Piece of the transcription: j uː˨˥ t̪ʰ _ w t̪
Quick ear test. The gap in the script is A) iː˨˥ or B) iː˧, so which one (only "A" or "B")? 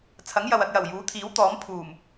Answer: A